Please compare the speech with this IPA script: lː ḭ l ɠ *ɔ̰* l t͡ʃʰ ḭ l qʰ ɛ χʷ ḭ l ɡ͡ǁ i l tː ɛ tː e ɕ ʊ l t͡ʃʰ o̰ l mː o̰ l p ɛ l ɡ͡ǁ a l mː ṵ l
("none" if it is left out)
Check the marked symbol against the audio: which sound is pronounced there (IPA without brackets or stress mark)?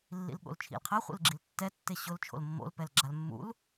o̰